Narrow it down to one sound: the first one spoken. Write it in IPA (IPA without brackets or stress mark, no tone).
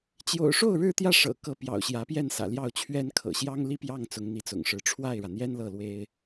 t͡ɕ